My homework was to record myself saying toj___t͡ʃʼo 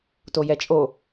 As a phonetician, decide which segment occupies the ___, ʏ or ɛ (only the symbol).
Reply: ɛ